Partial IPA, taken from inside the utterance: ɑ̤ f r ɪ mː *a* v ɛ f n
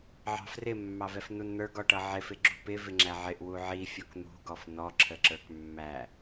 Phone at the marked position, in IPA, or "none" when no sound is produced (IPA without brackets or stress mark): ɑ